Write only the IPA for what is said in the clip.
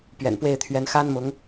p ɥ ɛ̰˨˩ n p w e˥˩ ɪ̯ t̪ʰ ɥ ɛ˧˥ n x a˥ n m ʊ˧˥ ŋ

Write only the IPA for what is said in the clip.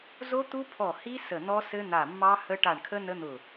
z o˦˥ t̪ u˦˥ pʰ ɔ˧˩ h i˦˥ s ə˧˩ n̪ ɔ˦˥ s ɘ˦˥ n̪ a˧˩ mː ɑ˦˥ h ə˦˥ ʈ a˧˩ ɳ kʰ ə˦˥ n ə˦˥ n̪ ʊ˧˩

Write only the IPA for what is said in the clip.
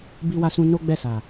b i˦ w a˦ s ũ˦ n o˦ ɡ͡b ɛ˦˨ s a˨

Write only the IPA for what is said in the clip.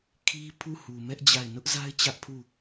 kʰ i˦ pʰ u˦˨ h u˨ m ɛ˦ ʔ d͡ʑ a˦˨ ɪ̯ n ʊ˦ ʔ z a˦ ɪ̯ t͡ɕ ä˦ ʔ pʰ u˦˨

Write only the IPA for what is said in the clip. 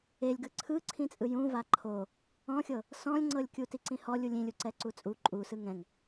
e lʲ ɡ ɯ ǀʰ ɯ ǀʰ ĩ t͡sʼ ɯ j ũ v a ǃʰ o | ɔ̃ xʲ ɤ | s ɔ̃ lʲ ŋ͡ǀ ɤ lʲ kʲ u t i ǀ ĩ h ɔ lʲ u lʲ ĩ lʲ u ǀ ɛ ǀ u t͡sʼ u ǃʼ u s ɯ ŋ ɛ̃ ŋ

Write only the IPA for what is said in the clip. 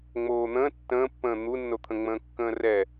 ŋ͡m oː n̪ ə̃ː tː ə̃ː pː ə̃ː n̪ u nː o t̪ʰ ə̃ ŋ͡m ə̃ː kː ə̃ː r ɛ

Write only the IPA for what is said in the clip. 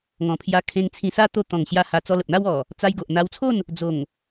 ŋ ɔ̃˨˩ pʰ j a˧ kʰ ẽ˧ ŋ t͡sʰ ĩ˧ s a˦ t̪ o˧ t̪ ɔ̃˨˩ ŋ ɕ j a˧ h a˧ t͡s ɔ˧ l ə˨ p̚ n̪ a˦ w ɔ˨˩ | t͡s a˧ j ɡ o˨ ʔ n̪ a˧ w t͡sʰ o˥˧ n | d͡z o˨˩ ŋ

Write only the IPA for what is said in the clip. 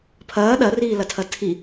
pʰ ɐː ɗ ɐ r iː l ɐ tʰ ɐ tʰ i

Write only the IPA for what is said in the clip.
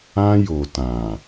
ã˦ j o˨ t ã˨

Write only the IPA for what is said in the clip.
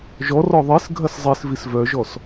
ʒ ɔ r ɔ ðˤ i s ɡʱ ɐ s zˤ i s v i s v œ ʒ ɔ s

